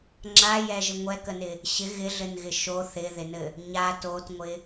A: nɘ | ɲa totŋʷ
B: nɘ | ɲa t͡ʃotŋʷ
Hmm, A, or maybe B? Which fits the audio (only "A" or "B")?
A